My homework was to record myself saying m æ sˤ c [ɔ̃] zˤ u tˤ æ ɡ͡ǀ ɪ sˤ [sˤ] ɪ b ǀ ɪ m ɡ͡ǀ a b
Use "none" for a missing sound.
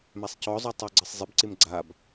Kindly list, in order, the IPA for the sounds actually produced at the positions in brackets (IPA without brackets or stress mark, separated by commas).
ɔ, zˤ